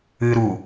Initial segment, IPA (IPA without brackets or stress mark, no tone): ɨː